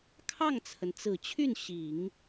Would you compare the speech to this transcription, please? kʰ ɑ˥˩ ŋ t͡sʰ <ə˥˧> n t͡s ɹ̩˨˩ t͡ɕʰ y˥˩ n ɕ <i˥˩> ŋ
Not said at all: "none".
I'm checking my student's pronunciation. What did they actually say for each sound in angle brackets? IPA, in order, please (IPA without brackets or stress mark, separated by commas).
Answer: ə˩, i˨˩˦